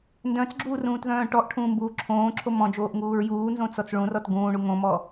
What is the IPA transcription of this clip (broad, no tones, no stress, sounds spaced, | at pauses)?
n d œ̃ t͡s ɡ͡ǁ uː r ũː t ð œ̃ː ʈ ɔ ʔ ʈʰ ũː m b uː ǁʰ õː ǁʰ o m ɔ̃ d͡ʒ oː ʔ ŋ uː ɹ j uː n z õ t͡s ɔ t͡s ɭ ũ r ɔ t ɡ ũː ɳ u ŋ õ m ɔ